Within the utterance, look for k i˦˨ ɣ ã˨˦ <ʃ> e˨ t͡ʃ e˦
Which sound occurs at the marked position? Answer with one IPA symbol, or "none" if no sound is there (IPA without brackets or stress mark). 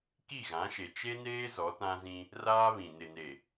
ʃ